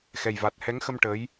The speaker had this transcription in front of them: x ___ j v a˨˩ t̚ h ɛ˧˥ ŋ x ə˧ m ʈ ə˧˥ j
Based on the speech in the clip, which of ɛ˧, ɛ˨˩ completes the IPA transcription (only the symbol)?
ɛ˨˩